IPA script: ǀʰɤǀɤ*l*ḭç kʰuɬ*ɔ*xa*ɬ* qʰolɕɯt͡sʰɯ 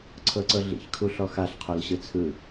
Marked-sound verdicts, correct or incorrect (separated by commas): incorrect, correct, correct